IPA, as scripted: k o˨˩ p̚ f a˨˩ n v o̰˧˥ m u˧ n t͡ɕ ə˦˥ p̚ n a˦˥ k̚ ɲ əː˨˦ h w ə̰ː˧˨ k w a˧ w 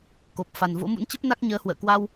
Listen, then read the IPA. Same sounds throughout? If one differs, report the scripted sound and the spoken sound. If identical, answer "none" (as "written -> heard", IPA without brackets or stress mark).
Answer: u˧ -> ṵ˧˥